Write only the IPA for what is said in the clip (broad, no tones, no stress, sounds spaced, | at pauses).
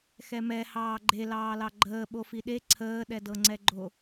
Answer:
x ɛ m ɛ h ɑː ɡ͡ǃ e l ɑː l ɑ ɡ͡ǃ əː ɓ o f i ɗ e ǀʰ əː ɗ ɛ d ɤ ŋ͡ǀ ɛ ɡ͡ǃ o